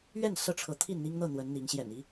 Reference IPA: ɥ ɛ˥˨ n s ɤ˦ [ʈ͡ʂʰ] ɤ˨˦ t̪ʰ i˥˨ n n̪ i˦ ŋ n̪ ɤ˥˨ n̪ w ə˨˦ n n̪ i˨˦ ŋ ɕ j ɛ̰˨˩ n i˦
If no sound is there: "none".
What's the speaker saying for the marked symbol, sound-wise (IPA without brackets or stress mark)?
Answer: ʈ͡ʂʰ